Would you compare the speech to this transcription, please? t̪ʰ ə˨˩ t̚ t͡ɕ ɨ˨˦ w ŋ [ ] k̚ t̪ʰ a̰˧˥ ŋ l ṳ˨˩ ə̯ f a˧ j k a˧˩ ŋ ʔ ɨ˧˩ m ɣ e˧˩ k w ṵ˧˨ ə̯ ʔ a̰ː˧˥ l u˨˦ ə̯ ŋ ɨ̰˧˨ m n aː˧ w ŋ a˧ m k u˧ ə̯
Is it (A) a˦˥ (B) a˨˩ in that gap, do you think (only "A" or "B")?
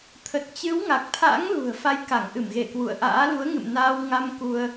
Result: B